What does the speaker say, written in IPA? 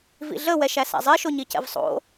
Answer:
vḭɮə wɛʃæsæ̰zˤi ʃoɲicɛ̰vsˤo̰

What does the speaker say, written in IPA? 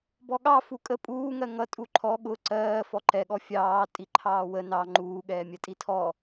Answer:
bɔɠɑ fukʼə pʼuːŋɜ ŋʌ tʼuǃʰɔ ɠʊ ǀɜː fɔǃɛɠɔ fʲɑː tʼiǃʰɑːwə nɑ ŋ͡ǃuːɠɛː mʲɜtʼitʰɔ

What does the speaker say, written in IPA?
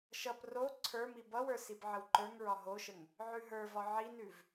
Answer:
ʃʌp ro ǀʰə˞mi bʌwə˞ sibʕəwǃə˞ŋɹɒ ɦoʃəŋ | ʕʉɦə˞vɒ ʕinʉv

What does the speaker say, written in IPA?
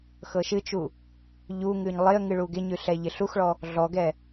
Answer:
xɤʃɨt͡ʃu | ʎuŋʉɲ lˠɪə̯ ŋɨɭuɡɪɲʉ ɬɛʎɪɬuxɭɔ | ɮɔɡɛ

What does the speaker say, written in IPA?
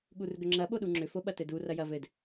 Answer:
ɠurɡʏŋ͡ǁɐ ɓoɗuŋ͡ǁʏ foɓɐtɘdu rɐjɐ vɘd

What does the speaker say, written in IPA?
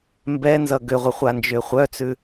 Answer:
mbɛ nzʌɡʏʁʷə χʷand͡ʒʏːχʷœt͡sʉ

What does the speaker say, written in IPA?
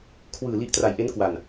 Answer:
kʰwɯː˨˩li˦˥ʔtra˨˩jʔe˦˥n kwa˨˩n

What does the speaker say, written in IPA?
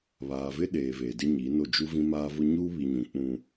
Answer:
βaː˨vɪ˦ɗeː˨ veː˨dɪ˦ɲiː˨˦no˦˨ d͡ʒu˦vĩ˦maː˦vʊ˦ ɲuː˦ βi˨ɲũ˨ k͡pũ˦

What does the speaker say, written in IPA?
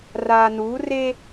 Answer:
raː˨ nuː˨˦reː˦

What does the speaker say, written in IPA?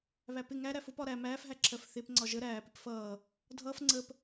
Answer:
βæpɪ ŋæɾæf ʊpɒ ɾæ mæːfɦæ ǁʰɜfθɪp ŋ͡ǀɒʒə ɾæːpɪp fʌː | dʱʌːf ŋ͡ǀəp

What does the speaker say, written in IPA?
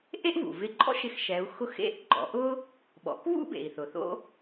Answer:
ʔe˥ʔvṵ˩vɪ˧ǃʼɔ̰˥ʃ ɪ˧xʃɛ˩˧u̯xʊ˧˥x ḛ˧˥ʔɡ͡ǃɔ̰˩˧ʔʊ˥ | ɓɔ̰˩˧kβṵ˥ bḛ˩i̯θʊ˩θo̰˥

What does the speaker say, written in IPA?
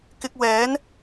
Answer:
kɪ˧k̚ wɛː˨˧n

